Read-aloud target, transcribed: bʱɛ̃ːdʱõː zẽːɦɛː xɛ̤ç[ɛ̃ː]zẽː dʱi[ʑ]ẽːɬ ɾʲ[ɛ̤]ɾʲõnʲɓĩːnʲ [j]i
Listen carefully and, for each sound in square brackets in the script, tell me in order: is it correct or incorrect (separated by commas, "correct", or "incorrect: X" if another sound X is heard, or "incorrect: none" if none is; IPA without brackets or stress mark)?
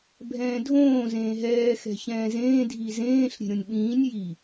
correct, incorrect: z, incorrect: e̤, correct